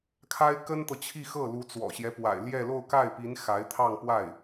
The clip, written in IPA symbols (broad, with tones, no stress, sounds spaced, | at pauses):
kʰ a˥ ɪ̯ k ə˥ n t̪ ɤ˨ t͡ɕʰ i˥˧ x ɤ˥˩ l u˧˥ t͡s w ɔ̰˨˩ ɕ j ɛ˦ p w a̰˨˩ ɪ̯ l j ɛ˥˧ l o˥˧ ʊ̯ k a˥˩ ɪ̯ p i˧˥ n x a˧˥ ɪ̯ t̪ʰ ɑ˥˧ ŋ p w a˥˩ ɪ̯